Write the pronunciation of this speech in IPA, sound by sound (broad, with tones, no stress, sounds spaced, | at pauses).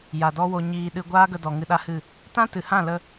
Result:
j a˨ d ɔ˦ w o˧ ɲ iː˨ ɗ ɨ˧ ɡʷ aː˦ ɡ ə˧ d ɔ˨ ŋ ɨ˧ ɗ a˦ h ɨ˦˨ | t ã˦ t ɨ˨ h ã˦˨ l ə˧